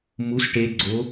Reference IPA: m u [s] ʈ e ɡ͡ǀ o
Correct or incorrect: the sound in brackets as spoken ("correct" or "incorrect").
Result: correct